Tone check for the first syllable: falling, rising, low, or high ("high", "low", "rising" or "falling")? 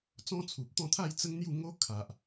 high